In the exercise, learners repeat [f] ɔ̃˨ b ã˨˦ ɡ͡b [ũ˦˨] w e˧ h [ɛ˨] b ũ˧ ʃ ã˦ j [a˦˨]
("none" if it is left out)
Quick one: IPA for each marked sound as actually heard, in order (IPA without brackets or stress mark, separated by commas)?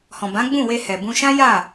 h, ũ˦˨, ɛ˨, a˦˨